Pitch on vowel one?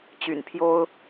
low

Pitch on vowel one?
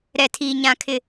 low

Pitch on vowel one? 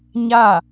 falling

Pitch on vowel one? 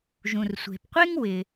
low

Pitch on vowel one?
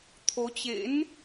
rising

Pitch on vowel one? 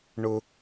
high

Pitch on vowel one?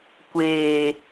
low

